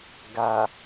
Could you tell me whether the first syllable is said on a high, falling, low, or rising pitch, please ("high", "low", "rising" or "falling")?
low